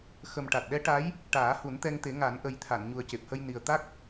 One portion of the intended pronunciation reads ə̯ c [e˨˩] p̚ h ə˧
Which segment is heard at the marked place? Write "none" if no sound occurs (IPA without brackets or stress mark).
e˨˩